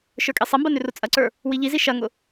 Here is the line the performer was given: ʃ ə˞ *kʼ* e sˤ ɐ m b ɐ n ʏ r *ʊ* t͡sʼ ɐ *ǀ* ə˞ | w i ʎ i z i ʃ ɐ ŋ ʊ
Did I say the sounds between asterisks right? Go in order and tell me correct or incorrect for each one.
correct, correct, correct

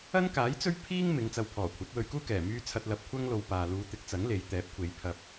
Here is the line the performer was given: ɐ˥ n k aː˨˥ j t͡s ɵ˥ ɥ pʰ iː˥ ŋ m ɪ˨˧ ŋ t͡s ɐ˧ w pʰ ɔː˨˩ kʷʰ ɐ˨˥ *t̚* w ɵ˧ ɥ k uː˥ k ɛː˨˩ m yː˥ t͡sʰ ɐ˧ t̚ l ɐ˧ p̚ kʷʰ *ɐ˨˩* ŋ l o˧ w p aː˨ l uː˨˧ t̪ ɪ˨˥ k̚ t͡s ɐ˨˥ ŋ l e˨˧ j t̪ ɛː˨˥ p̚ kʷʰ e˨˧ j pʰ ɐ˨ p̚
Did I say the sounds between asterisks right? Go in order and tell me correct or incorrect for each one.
correct, incorrect: ɐ˥

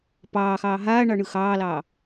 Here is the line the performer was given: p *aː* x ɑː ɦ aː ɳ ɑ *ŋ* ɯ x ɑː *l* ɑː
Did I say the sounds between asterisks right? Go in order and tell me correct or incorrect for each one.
incorrect: ɑː, incorrect: ɳ, correct

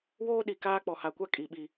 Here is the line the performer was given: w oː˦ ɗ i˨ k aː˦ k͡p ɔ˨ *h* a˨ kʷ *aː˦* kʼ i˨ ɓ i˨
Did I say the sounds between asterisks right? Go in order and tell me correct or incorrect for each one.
correct, incorrect: a˦

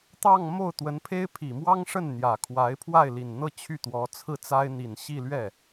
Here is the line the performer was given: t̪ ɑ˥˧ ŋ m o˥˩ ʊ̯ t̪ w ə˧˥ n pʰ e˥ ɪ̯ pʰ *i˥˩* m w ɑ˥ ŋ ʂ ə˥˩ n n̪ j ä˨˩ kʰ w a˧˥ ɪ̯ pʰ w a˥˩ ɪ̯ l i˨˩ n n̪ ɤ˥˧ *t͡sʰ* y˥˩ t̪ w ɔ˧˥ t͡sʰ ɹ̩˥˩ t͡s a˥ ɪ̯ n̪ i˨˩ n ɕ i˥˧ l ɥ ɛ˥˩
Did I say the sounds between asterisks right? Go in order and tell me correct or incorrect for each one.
incorrect: i˨˩, incorrect: t͡ɕʰ

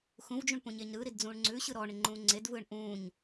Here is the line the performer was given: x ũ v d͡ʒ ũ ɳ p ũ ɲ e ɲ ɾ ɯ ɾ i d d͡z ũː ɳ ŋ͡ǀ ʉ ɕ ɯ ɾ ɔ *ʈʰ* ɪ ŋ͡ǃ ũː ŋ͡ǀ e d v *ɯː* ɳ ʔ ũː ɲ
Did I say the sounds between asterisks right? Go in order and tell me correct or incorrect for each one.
incorrect: ɳ, correct

